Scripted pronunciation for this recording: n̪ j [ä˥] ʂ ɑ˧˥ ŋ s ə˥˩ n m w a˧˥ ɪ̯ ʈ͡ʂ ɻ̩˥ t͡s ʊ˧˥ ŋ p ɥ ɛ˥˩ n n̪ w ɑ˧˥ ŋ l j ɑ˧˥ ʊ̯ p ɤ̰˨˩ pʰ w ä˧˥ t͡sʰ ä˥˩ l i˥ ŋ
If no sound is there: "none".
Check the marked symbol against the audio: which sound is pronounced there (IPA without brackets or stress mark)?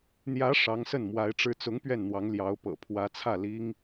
ä˧˥